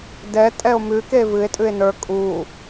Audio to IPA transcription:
d ɛ tʼ ɛ o̯ m ʉ k e v ɨ e̯ tʼ ʉ e̯ n ə˞ kʼ u

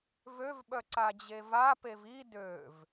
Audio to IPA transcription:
v ø v ɓ œ ǀ a d͡ʑ e v a p e v i d ø v

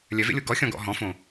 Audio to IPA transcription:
lʲ œ v ḛ lʲ o ɡ ɔ xʲ ɔ̃ ɡ ɔ̰ ɦ ɔ̃ f õ

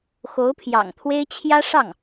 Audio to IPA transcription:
x o˧˥ ʊ̯ pʰ j ɑ̰˨˩ ŋ t̪ʰ w e˥ ɪ̯ t͡ɕʰ j ä˥ ʂ ɑ˥˩ ŋ

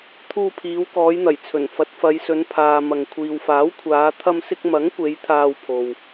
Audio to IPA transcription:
t̪ʰ uː˧ pʰ iː˨˧ w k ɔː˨˧ j n̪ ɐ˨˩ j t͡sʰ ɵ˨˩ n f ɐ˨˥ t̚ f ɐ˨˧ j s ɵ˨˧ n pʰ aː˨ m ɐ˨ ŋ kʷʰ iː˨ w f aː˨˥ w kʷʰ aː˨˧ t̪ʰ ɐ˧ m s ɪ˧ k̚ m ɐ˨˥ ŋ kʷ e˨˧ j t̪ʰ aː˧ w pʰ o˨ w

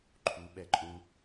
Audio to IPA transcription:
ǃʰ u ɓ ɛ ǃʼ ũ

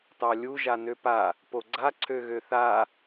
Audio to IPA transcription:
t ɑ lʲ u ʒ a n ø p a | p o ɡ͡ǀ a ǀʰ ø ɣ ø θ a

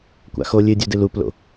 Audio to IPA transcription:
kʷ a̰ x o lʲ ɨ dʲ ɵ d ɨ l u p l o̰

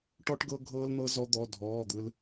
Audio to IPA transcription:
ʈ ɔ˧ ʈ ɡ ɤ˧ ɡʱ ɤː˧ l n̪ ɤ˧ z ɔ˧ d̪ ɔ˩˧˩ dʱ ɔː˩˧˩ d̪ ɯ˧ l

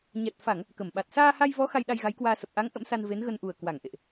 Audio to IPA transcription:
ɲ ɛ˨˩ t̚ f a˧˩˨ ŋ | k ə˧˩ m ɓ a˨˩ t̚ s aː˧ h a˧ j v ɔ˨˦ x a˧ j ɗ a˧ j ɣ a˨˦ j k w aː˧ s ə˨˩ p̚ ʔ a˨˦ ŋ ʔ ə̰˧˥ m s a˧ n v e˨˦ n ɣ ə˧ n ʔ u˨˩ ə̯ k w a˧˩ ŋ ʔ ḛ˧˨ ʔ

